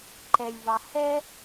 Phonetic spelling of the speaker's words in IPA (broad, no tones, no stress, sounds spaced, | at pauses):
ǃ ɛ lʲ v ɑ h ɛ